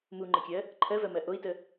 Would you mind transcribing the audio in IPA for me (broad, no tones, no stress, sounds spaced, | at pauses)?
m u ŋ͡ǃ ə kʲ ɜ | ǃʰ ɜ v ɜ m ɜ ʔ o i̯ t ə